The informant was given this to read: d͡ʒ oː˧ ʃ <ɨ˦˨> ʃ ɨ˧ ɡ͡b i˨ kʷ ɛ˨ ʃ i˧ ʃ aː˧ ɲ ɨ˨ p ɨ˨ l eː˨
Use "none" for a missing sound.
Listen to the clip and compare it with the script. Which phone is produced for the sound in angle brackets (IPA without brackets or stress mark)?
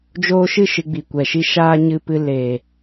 ɨ˦˨